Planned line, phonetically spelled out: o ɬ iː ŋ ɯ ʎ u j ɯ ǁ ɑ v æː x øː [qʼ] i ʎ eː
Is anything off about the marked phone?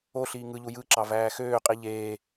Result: no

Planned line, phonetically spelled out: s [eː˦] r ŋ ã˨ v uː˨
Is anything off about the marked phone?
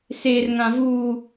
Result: yes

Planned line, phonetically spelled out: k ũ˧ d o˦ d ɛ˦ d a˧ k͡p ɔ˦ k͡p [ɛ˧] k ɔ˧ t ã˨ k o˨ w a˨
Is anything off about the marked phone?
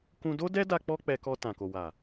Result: no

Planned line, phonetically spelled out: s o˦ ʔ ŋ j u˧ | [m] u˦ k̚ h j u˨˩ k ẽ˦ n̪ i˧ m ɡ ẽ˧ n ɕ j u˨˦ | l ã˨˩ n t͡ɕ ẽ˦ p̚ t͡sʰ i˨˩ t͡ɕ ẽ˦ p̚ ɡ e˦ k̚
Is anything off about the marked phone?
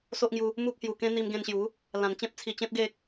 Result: no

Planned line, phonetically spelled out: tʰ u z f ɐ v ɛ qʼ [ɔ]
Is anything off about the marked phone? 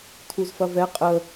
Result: yes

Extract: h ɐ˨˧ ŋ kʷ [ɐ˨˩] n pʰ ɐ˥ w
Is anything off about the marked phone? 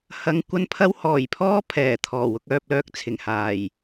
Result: yes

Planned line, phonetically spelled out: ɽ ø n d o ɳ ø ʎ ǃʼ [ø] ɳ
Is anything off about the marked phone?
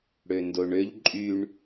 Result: yes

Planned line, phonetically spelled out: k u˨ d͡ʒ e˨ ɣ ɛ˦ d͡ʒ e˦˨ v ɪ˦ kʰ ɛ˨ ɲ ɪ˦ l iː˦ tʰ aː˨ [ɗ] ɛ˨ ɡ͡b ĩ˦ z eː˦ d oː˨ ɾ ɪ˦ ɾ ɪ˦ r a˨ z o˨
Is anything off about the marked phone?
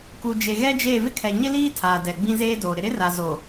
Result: yes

